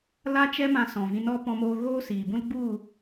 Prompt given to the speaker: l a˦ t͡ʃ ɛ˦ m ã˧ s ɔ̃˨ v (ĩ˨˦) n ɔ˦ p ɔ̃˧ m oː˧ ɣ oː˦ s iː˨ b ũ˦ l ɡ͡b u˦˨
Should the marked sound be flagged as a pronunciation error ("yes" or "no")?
yes